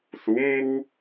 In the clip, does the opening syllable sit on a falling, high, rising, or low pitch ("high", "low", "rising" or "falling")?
rising